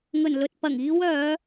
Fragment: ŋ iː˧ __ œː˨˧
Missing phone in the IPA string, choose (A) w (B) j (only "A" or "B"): A